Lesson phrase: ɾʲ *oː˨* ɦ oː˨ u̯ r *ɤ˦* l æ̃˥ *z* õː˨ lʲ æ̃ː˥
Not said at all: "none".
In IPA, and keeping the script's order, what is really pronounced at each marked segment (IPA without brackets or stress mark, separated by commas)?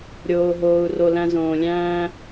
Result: oː˨, o˦, z